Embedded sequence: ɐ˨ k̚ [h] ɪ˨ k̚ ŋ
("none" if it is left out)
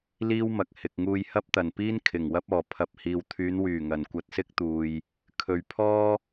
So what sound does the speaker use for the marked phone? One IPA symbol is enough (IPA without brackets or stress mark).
h